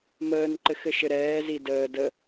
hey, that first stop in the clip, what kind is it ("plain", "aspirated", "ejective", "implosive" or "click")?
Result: click